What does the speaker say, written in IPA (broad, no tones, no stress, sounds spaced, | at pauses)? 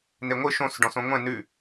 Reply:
n e ŋʷ ɨ ʃ õ s ɖ ɔ̃ s õ ŋʷ ɛ̃ n ʉ